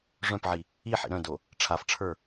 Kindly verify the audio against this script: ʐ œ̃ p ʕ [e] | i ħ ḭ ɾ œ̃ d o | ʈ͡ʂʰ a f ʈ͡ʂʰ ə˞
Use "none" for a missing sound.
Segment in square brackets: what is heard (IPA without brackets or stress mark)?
i